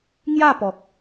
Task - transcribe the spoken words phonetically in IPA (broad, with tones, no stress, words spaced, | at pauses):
ŋja˥˧pɔ˨k̚